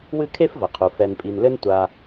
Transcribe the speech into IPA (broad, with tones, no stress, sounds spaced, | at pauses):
w ɨ˦ kʰ e˥ f v ɐ˩ qʰ u˩ f ɛ˨ n pʼ i˨ n l ɘ˥ n tʷ a˨